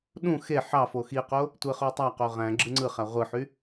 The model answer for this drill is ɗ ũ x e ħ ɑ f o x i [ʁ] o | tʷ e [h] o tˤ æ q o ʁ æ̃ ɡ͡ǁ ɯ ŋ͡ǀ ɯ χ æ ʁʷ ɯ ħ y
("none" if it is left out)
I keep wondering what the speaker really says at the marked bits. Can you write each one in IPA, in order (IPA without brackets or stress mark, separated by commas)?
q, χ